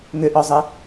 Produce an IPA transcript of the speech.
ŋʏʔɔzˤə

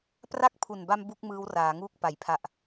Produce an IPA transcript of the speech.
pra˦˥k̚pʰu˨˩nba˧m bu˥˩k̚mɯː˦˥w raː˩˦ŋuː˦˥k̚ pa˩˦j pʰa˨˩ʔ

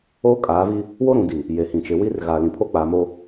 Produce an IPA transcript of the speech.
oː˦kʼaː˨˦vi˦ | wo˦ɾũ˨di˨ | je˨hĩ˨t͡ʃɪ˨˦ wi˦rɣa˨ lĩ˨pʰo˦k͡paː˨˦m o˦

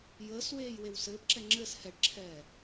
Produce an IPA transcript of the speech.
jəːs weːjwewsɘːpǁɛ ŋ͡ǁɘs hɛɖǁʰɛː

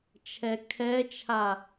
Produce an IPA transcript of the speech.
t͡ʃʰɛkʰɛt͡ʃʰa

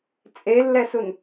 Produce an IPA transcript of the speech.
t͡sʼelːɛsun

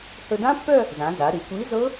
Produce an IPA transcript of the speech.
hɵ˧dã˦˥pːœ˥˧ | zã˩˧za˩˧ ɾi˩˧kʷi˨˥ zɤ˦˥

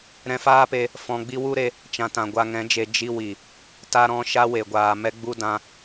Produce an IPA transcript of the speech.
ɾɛ̃˧faː˦pe˧ | fɔ̃˧ɡ͡bi˦ wu˦ɾe˧ | t͡ʃã˨tã˨ ɡʷa˧ŋɛ̃˨˦d͡ʒe˧ d͡ʒi˧wi˨ | ta˧ɾɔ̃˧ ʃa˦we˨ɡʷaː˨ mɛ˦ɡ͡bu˦dã˧

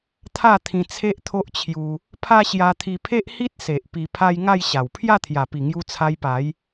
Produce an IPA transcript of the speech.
t̪ʰa˥˧t̪ʰĩ˧ t͡sʰe˦ʔt̪ʰo˦ʔt͡ɕʰju˧ | pʰa˦ɕja˧t̪ʰi˧pʰe˦ʔ hi˦t̚se˨ʔ pi˧pʰa˦j ŋa˥˧jɕa˨˩w pʰja˥˧t̪ʰja˨˩pi˨˩ŋju˧ t͡sʰa˧jpa˨˦j

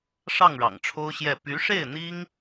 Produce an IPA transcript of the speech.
ʂɑ˥˩ŋɻɑ̰˨˩ŋʈ͡ʂʰo˥ʊ̯ɕjɛ˥˩ py˧˥ʂe˥˩ɪ̯n̪i˥ŋ

